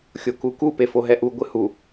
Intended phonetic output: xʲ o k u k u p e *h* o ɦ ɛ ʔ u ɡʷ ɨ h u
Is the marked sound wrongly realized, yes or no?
yes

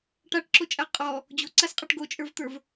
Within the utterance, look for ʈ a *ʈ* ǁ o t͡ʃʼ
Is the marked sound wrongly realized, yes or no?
no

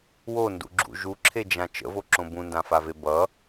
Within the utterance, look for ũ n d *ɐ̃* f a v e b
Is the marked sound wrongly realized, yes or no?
yes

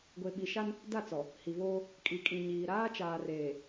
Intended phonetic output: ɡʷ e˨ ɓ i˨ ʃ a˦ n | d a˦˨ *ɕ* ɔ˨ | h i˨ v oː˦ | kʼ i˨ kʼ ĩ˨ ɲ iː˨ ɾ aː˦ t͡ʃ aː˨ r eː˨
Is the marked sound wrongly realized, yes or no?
yes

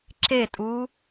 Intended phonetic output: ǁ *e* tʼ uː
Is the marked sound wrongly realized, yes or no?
no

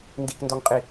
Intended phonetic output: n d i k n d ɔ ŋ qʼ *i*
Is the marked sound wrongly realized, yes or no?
no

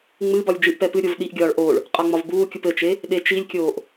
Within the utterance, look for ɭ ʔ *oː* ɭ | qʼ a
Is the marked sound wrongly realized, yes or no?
no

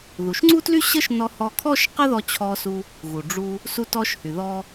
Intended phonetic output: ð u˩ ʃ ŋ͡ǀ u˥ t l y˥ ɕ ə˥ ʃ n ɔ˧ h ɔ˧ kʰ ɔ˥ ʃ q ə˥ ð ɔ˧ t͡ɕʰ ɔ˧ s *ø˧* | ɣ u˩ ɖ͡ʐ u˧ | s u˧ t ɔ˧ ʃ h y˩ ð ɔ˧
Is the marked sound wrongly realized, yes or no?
yes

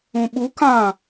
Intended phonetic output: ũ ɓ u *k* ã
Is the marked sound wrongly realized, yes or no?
no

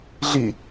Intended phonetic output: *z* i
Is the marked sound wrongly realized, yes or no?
yes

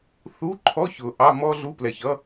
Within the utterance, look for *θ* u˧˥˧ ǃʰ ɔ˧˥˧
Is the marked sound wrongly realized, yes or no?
no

